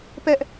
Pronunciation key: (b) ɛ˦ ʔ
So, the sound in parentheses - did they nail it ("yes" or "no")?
no